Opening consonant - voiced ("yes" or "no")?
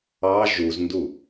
yes